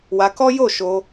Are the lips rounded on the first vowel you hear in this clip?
no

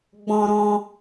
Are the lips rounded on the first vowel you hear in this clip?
yes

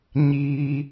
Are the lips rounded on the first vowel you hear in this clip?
no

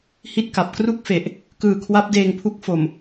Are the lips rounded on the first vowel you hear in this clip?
no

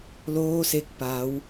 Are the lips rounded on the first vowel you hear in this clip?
yes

